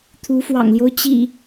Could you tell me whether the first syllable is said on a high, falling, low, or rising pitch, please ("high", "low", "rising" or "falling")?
rising